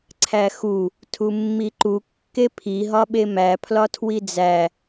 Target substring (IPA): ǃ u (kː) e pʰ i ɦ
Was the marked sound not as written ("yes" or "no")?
no